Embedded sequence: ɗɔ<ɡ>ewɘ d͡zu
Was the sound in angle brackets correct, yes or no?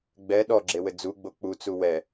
no